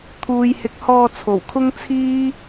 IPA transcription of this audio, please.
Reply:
t̪ʰ uː˨ j h ɪ˨˥ k̚ h ɔː˧ t͡sʰ o˨˩ w kʰ ʊ˥ ŋ t͡sʰ iː˥

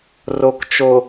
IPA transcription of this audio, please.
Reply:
r o˨ k t͡ʃ o˨

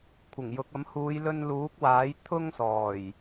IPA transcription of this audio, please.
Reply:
kʷʰ ɪ˨˩ ŋ j ʊ˨ k̚ ɐ˨˥ m h uː˨˧ j l ɵ˧ n l uː˨˥ k̚ w aː˨˥ j t̪ʰ ʊ˥ ŋ s ɔː˨˩ j

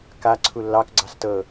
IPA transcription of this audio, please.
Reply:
k a ǀʰ u lː ɑ k ɡ͡ǀ ɑ s t ɤ

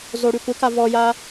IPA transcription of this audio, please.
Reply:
z o ɽ y kʷ ɪ k a v ɔ j a

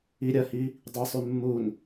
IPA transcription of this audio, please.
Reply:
i ɾʲ ɐ h i | dˤ i sˤ ʉ mː u n

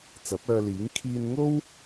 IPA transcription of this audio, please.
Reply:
t͡s ɐ˨˥ p̚ œː˧ l iː˨˥ ŋ kʰ iː˧ n ŋ o˥ w

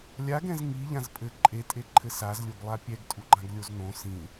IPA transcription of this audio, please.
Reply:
lʲ a ɡ ɛ̃ z ŋ i ʎ ã z pʼ ɘ ǃʼ e tʼ e ǃʰ ɘ s a z lʲ o ɡ lˠ a pʲ ɛ ɡ tʼ u ɡ͡ǃ ã ɡ lʲ o z n õ s ĩ

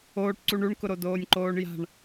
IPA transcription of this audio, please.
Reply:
oː ʈ ǀ u ɳ u ɳ k ʊ ɾ o d oː nʲ ǃ oː ɳ j a̤ ɳ

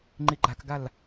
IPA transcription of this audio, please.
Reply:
ŋ͡ǃ i ɡ͡ǃ a k ɡ a l

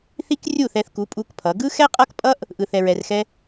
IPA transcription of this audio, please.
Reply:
θ i˦ k rʲ u˦˨ θ ɛ˧ θ k u˨˦ pʼ u˦ k pʰ ʌ˨˦ ɡ ɯ˦ x ɛ˦ qʼ ʌ˦ k pʼ ʌ˦ ʔ | ʔ ɯ˨ θ ɛ˨ ɹ ɛ˨ r x ɛ˧

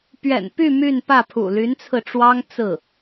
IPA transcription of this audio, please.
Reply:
p ɥ ɛ̰˨˩ n p y˥˧ m y˥˧ n p ä˥˩ pʰ ṵ˨˩ l y˧˥ n t͡sʰ ɹ̩˧ ʈ͡ʂ w ɑ˥ ŋ t͡s ɹ̩˥˩

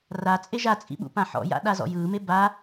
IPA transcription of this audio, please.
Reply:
r a t͡sʼ e ʒ a t͡sʼ ḭ ɓ ṵ p ã ħ ɔ̰ j a̰ ɗ a z ɔ̰ j ɯː m e b a

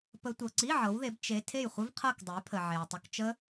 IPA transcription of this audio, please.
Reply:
p ə˦˥ tʷ ɤ˨ ǀ i˧˥˧ ʕ ɤ˨˦ w ð e˨˦ b t͡ʃ e˦˥ tʰ e˥˨ j χʷ ə˦˥ v qʰ ɤ˥˨ k dˤ ə˨˦ j pʰ ə˨ ʕ e˨ w tˤ ə˧˥˧ k t͡ʃ ə˦˥

